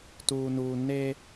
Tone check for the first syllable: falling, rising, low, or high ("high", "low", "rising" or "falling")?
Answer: low